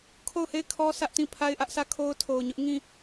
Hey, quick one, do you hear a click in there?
no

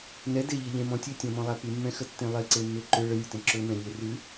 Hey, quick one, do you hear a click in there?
yes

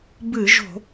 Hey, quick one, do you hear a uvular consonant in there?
no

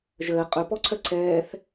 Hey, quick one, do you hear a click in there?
yes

